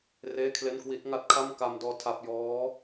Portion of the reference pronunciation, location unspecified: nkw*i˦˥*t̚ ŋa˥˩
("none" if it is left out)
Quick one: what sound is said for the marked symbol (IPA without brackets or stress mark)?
i˦˥